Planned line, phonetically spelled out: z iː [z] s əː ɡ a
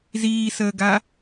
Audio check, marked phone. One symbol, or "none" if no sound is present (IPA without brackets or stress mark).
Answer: none